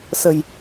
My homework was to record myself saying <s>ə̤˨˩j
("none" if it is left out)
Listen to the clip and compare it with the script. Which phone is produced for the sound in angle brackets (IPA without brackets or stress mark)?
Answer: s